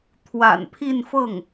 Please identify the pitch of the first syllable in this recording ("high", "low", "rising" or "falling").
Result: low